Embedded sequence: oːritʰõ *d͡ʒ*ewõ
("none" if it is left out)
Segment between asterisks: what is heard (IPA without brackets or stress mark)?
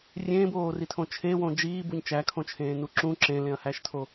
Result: t͡ʃʰ